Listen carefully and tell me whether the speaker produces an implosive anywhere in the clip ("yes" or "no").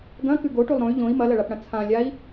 no